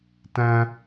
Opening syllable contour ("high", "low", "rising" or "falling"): high